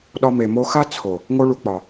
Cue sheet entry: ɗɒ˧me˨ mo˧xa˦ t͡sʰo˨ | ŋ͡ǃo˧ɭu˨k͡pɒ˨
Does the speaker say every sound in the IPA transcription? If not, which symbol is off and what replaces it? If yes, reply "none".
ŋ͡ǃ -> ŋ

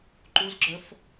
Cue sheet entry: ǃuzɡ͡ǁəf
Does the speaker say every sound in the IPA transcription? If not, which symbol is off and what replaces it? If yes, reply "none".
none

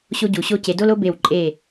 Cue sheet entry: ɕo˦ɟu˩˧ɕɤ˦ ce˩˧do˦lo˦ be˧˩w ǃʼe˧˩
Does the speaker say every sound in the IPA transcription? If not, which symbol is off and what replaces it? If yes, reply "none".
ɤ˦ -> o˦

